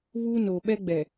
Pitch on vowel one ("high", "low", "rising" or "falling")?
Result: high